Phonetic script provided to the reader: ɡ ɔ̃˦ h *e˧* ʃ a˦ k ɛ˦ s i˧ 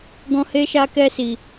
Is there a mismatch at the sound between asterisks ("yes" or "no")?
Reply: yes